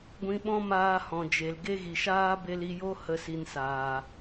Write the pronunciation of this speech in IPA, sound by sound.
ɡʷ ĩ˧ ɓ ɔ̃˦ m aː˧ h ɔ̃˨ d͡ʒ e˨ l ɡ e˦ ɣ i˨ ʃ aː˦ b e˧ l i˧ j o˦ h ə˦ s i˧ n s aː˨

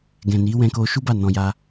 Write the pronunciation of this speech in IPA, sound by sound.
ɡ ɛ̃˨ n i˨˦ w ɛ̃˧ k o˧ ʃ u˦ b a˦˨ n ɔ̃˧ j a˦

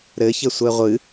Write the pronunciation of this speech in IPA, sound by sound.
ɾ ɘ ç ɘ sʷ ɛ ʁʷ ɨ

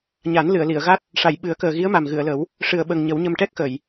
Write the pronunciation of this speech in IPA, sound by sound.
ɲ a˨˩˦ n l ɨ˨˩˨ ə̯ l i˨˩˨ ə̯ ɣ a˦˥ t̚ | ʂ a˨˩˨ j ɓ ɨ˨˩˦ ə̯ k əː˨˩ ɣ i˧˥ ə̯ m a˨˩ m ɣ ɨ˨˩˨ ə̯ l ə˨˩˦ w | ʂ ɨ˨˩ ə̯ ɓ ə˨˩ ŋ ɲ ə˨˩˦ w ɲ ə˧ m ʈ ɛ˦˥ k̚ x ə˨˩˨ j

